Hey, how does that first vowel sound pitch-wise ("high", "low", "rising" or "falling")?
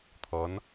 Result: rising